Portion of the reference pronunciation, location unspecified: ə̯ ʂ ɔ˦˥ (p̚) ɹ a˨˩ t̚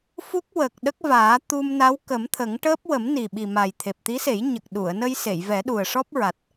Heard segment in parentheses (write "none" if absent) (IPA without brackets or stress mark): p̚